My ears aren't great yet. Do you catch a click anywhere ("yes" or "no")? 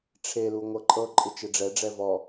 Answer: yes